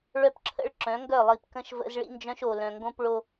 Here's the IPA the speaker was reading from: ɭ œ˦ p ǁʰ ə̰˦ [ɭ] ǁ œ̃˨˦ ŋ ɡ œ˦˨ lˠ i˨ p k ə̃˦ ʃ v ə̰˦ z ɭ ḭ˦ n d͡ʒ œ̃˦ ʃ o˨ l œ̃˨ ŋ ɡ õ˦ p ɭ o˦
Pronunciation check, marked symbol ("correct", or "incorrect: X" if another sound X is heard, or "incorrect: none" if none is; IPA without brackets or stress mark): correct